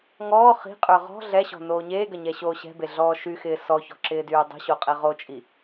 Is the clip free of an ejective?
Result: no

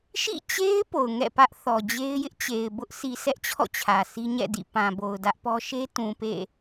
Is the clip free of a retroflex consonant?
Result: yes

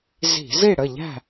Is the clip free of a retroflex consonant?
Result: no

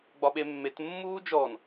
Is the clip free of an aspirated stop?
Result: yes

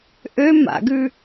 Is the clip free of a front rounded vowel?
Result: no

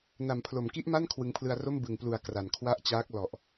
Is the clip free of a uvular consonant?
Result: yes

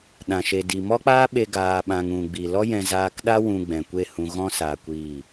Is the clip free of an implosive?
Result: no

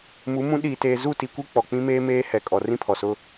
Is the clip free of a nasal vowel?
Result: no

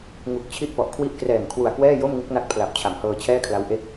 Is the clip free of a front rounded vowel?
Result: yes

